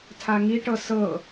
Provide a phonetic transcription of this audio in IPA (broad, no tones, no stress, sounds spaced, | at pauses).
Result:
tʰ a ŋ i ʈ ɤ s ɤ